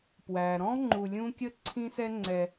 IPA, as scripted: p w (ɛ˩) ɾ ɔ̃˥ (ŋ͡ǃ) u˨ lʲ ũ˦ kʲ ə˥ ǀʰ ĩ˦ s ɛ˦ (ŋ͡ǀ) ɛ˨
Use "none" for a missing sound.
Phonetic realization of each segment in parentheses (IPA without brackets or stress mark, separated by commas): æ˩, ŋ͡ǃ, ŋ͡ǀ